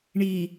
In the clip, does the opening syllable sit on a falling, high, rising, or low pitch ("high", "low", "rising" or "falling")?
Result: low